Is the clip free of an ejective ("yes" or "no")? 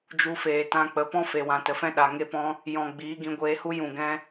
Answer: yes